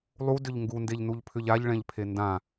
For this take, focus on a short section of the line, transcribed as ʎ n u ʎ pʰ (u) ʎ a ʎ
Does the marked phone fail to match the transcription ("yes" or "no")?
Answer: yes